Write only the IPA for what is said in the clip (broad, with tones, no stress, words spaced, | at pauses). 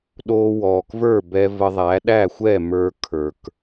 ɗo˧ wɔː˩kvə˞˥˩ bɛ˧ və˧ðˤæ˩˥ ɗæ˥˩xʷɛ˥˩mə˞˧ kʰə˞˩k